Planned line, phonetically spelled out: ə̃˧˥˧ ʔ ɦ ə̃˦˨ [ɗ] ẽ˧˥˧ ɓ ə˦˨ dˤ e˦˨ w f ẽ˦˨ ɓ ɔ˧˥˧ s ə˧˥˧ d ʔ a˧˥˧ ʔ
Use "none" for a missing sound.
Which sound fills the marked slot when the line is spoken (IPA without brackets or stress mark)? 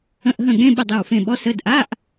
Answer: ɠ